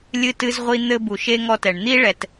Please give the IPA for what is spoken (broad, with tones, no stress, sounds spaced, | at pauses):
lʲ ɨ˧ t ɨ˧ z ʁʷ i˧ n̪ ɘ˧ b u˨ ʃ e˧ ŋ ɔ˧ t ɛ˨ ɳ n̪ i˧ ɭ ɛ˨ t